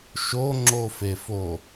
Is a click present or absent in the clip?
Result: present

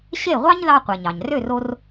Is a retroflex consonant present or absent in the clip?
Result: absent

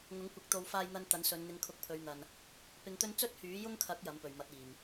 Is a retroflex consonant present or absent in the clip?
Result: absent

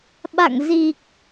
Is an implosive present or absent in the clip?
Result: present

